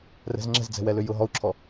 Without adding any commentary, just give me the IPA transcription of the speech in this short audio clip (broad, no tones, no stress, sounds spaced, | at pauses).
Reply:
r ɛ̤ z ŋ͡ǁ ɛ̤ z d͡z ɛ̤ w ɛ l ʏ j ʊ ɦ ɔ u̯ ǁʰ ɔ